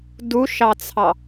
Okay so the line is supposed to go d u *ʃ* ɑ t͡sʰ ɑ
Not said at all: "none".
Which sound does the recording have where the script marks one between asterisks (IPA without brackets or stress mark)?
ʃ